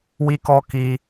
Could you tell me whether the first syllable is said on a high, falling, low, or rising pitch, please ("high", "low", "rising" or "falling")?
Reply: high